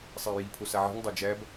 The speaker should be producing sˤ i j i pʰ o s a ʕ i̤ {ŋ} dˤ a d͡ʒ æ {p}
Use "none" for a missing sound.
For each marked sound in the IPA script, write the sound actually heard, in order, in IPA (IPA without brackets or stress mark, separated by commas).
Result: ŋ, b